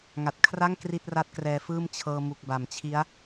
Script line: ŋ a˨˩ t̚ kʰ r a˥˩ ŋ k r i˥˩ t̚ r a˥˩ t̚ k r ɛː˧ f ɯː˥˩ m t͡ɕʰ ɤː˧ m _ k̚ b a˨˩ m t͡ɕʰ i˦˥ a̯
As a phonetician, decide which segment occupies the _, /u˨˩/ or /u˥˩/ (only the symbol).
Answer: u˨˩